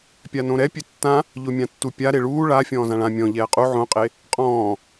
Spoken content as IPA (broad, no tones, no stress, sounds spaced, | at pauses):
pʲ a n õ ɾ ɛ pʲ e tː ã | ʎ o mʲ ã tː u pʲ a ɾ e ɭ uː ɭ a fʲ ɔ̃ː z ã ɭ ã mʲ ɔ̃ ʎ ɛː qʼ u ʕ õ qʼ e | qʼ ɔ̃ː